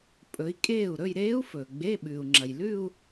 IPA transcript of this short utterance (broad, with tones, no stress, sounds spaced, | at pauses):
pʼ ɵ˩˧ i̯ kʼ eː˥˩ u̯ ɾ ɵ˥˧ j ɾ eː˦˥ u̯ f ɵː˩ ɡ͡b e˧˥˧ ɓ ʉː˩ u̯ ŋ͡ǁ ɐ˩ j l ʉ˥˧ u̯